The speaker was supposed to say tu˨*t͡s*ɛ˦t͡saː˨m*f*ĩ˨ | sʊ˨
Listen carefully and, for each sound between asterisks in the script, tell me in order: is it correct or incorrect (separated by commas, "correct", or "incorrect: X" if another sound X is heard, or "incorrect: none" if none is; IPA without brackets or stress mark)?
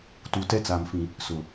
incorrect: t, correct